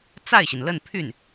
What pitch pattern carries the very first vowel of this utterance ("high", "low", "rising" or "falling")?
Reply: falling